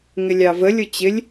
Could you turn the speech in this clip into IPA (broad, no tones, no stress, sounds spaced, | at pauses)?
ŋ ɪ lʲ ɑ v ə lʲ ʊ t͡ɕ ɪ lʲ